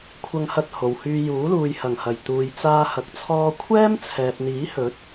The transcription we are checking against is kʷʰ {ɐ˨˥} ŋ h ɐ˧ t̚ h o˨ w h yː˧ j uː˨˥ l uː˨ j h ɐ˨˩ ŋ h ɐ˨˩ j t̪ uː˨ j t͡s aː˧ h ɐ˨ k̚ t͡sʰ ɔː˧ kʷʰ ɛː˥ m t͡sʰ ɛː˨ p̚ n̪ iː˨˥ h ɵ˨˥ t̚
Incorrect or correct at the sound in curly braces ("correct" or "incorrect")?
incorrect